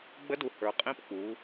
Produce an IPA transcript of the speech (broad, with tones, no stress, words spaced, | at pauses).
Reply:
ɡ͡bə˧˥du˩˧ hə˞˩˧qʼĩ˧˥p k͡pu˩˧